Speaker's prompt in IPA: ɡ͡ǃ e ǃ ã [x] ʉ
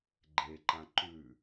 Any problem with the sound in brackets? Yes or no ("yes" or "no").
yes